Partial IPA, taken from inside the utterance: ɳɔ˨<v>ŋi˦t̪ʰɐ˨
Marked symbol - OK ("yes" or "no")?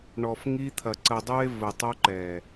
no